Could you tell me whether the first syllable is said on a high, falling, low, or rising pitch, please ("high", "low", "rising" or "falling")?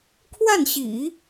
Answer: falling